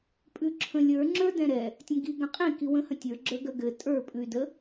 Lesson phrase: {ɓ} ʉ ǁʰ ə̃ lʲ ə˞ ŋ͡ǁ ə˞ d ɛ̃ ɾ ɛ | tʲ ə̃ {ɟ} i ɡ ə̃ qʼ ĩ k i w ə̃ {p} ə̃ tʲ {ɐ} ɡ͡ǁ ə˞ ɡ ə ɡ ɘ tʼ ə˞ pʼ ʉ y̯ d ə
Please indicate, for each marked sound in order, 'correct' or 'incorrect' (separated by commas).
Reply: incorrect, incorrect, incorrect, incorrect